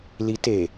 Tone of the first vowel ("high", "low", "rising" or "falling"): rising